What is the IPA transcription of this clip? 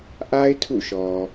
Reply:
ʔ a˦ ɪ̯ tʰ ṵ˦˨ ʃ ɔ˨

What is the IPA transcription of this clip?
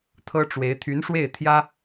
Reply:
t̪ʰ ɤ˥ ʈ͡ʂ w e˧˥ ɪ̯ t̪ʰ y˧˥ n ʂ w e˥˩ ɪ̯ t̪ʰ j ä˥

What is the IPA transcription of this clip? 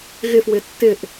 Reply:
ɣ ɪ f w ɪ tː ɪ ʔ

